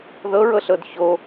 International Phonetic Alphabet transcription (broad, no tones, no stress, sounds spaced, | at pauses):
ð ɤ ɹ ɤ ɬ ɤ d ç o